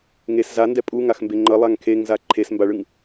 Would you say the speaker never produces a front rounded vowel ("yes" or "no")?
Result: yes